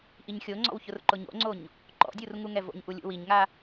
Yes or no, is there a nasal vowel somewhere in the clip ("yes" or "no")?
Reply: no